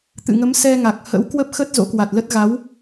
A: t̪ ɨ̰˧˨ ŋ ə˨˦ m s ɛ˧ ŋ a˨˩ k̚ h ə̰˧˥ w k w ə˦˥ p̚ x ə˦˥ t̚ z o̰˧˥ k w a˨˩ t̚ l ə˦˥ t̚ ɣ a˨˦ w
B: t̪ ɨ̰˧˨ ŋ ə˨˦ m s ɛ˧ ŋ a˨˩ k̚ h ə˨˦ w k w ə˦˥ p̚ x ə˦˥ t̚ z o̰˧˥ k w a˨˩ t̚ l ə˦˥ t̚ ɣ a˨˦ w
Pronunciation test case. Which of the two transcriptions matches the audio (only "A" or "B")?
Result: A